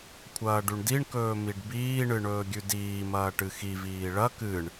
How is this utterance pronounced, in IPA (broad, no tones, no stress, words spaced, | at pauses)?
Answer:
kʷʰɐːɖʉɳdiɳkɵː miɖbiːɳɨ ɳɵːɡʲʉdiːmɐː ʈɨxiviː ɭɐ kɨɳ